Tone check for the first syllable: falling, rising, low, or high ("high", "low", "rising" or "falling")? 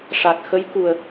low